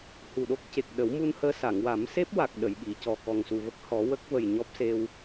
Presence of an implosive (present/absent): present